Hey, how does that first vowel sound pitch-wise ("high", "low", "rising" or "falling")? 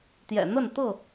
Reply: low